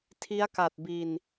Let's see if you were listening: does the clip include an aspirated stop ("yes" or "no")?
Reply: yes